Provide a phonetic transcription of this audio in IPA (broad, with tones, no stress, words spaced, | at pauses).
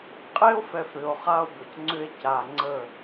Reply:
qʼe˦o̯fɛ˨f ɾʏ˨o̯χa˦o̯bə˨c ŋ͡ǀʏ˦e̯ca˨ŋ͡ǀə˦˨